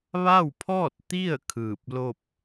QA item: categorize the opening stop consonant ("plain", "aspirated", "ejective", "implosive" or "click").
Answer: aspirated